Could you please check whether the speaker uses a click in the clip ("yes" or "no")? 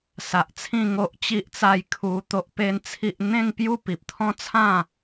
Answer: no